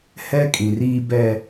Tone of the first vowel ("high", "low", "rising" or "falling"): high